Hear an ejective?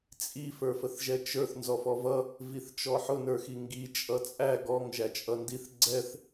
yes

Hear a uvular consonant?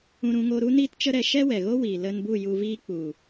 no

